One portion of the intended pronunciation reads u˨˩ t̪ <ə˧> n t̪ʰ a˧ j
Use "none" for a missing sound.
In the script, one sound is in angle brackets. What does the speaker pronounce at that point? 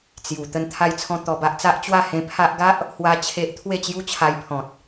ə˧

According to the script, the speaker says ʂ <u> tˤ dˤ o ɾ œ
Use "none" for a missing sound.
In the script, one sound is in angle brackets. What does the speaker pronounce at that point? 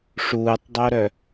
uː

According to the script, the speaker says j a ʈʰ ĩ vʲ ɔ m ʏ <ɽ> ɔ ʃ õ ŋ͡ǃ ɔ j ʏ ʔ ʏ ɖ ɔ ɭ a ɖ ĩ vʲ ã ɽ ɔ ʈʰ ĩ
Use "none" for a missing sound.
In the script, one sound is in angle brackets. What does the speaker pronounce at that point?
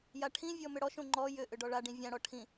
ɽ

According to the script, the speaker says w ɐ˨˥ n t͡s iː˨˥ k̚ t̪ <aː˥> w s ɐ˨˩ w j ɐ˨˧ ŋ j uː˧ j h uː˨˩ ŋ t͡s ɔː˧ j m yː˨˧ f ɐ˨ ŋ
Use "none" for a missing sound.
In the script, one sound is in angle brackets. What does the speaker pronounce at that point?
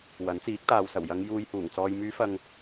aː˨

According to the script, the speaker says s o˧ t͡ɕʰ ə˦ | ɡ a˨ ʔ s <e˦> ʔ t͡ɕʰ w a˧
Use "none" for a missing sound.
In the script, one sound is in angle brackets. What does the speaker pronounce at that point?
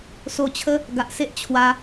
e˦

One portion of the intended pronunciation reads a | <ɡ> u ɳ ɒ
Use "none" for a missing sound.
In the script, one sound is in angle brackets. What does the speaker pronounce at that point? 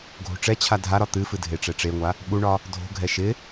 ɓ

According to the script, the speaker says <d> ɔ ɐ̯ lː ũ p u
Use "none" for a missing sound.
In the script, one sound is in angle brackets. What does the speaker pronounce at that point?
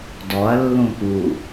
d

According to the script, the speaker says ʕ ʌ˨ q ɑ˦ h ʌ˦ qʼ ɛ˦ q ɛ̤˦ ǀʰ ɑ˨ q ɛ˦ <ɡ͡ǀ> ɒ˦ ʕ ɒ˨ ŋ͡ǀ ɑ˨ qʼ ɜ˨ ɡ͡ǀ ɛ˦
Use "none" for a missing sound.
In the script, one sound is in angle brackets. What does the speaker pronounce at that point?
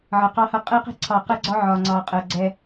ɡ͡ǀ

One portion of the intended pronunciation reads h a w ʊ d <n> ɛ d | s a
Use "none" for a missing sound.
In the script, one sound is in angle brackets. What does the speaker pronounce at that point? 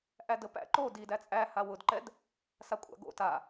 ǃ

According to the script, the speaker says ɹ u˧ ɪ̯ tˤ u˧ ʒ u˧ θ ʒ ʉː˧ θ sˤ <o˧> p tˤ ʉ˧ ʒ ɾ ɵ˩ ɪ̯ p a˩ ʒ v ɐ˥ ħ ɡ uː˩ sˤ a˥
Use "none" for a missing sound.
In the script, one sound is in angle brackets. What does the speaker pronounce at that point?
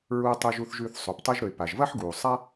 o˩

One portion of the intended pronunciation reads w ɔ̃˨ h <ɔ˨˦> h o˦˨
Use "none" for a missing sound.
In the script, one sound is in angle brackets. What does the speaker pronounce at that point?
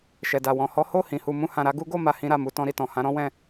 ɔ˨˦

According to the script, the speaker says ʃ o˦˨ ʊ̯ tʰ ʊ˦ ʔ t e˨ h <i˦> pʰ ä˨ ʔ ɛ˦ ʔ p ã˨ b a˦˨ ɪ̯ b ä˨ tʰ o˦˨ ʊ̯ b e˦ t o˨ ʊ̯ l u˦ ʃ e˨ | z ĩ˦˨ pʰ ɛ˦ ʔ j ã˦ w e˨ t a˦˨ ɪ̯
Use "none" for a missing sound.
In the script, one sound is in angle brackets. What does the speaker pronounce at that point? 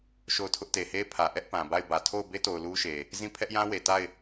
e˦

